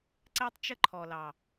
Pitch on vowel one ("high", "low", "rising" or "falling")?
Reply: high